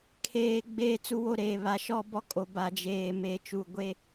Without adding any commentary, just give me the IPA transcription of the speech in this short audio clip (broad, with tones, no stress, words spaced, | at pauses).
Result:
kʰeː˨ ɡ͡beː˦t͡su˦wo˦ɾeː˨ βa˨ʃɔ˦ bɔ˦kʼo˨ ba˨d͡ʒeː˨ meː˨t͡ʃu˨ ɡʷe˦